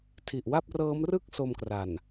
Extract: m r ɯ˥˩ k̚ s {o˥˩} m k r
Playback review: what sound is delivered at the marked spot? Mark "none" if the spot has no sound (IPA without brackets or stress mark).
o˧